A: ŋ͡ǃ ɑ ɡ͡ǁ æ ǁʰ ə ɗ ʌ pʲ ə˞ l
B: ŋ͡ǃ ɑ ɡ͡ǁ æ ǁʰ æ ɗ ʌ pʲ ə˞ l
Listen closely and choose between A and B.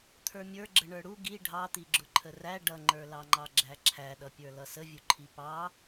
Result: B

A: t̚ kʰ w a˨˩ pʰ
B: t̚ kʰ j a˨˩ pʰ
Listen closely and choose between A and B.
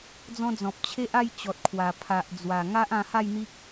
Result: A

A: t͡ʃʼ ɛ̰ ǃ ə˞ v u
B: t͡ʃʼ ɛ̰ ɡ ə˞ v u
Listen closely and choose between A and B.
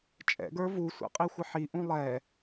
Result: B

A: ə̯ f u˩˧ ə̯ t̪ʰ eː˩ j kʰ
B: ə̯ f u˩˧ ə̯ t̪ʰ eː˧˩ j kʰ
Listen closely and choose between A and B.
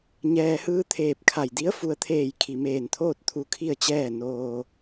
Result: B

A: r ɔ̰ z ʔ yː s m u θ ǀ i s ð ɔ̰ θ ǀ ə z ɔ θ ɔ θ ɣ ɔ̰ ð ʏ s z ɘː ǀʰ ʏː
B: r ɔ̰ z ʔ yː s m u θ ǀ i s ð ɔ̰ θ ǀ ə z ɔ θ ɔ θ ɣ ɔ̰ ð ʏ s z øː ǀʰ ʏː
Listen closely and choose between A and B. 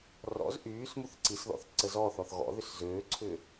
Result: B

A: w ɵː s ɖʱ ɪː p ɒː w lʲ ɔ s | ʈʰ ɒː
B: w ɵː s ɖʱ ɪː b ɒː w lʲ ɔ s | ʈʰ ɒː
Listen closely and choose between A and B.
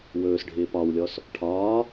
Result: A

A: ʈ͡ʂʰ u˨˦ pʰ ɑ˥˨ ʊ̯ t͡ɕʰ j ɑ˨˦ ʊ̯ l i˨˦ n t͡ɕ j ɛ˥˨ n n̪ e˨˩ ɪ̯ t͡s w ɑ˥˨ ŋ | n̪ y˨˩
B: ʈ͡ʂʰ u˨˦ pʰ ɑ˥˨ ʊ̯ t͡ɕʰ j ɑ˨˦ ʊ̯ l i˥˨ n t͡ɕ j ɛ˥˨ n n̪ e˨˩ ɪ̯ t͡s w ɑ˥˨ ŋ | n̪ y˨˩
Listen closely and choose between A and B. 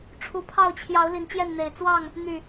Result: A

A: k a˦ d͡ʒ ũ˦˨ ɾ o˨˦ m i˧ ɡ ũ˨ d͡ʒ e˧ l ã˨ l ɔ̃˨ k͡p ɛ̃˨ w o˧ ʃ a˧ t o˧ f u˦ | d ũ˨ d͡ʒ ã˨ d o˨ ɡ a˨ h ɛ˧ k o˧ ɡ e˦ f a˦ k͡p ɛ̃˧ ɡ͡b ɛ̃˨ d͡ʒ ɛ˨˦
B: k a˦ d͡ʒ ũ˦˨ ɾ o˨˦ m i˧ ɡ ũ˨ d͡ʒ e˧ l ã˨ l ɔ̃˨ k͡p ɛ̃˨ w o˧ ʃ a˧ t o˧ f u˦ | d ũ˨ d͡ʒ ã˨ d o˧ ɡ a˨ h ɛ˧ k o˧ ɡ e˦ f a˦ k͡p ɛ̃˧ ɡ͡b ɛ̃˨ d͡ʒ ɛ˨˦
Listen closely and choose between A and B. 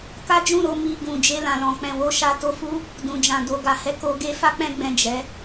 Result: A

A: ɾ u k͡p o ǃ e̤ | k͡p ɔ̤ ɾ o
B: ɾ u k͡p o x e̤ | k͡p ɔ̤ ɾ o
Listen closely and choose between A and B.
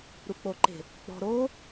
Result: A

